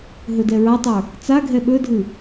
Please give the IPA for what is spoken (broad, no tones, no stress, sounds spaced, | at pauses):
ɦ ɵ d ɛ ɹ a tˤ ə˞ | t͡s a ɡʱ ɛ ɓ ɵ dʱ ɨ